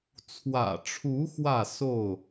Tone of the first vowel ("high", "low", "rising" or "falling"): low